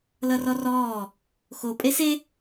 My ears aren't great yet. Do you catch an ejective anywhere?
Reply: yes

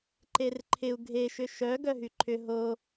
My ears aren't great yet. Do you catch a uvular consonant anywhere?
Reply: no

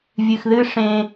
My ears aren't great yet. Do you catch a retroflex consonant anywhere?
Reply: yes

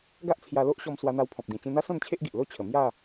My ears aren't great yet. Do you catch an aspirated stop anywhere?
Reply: yes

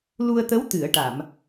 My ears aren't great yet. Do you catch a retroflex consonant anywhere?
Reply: yes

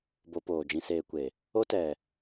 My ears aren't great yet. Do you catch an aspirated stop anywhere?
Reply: no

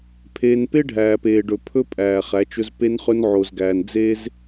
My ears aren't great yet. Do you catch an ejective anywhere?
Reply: yes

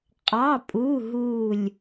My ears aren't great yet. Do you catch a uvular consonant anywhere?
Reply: yes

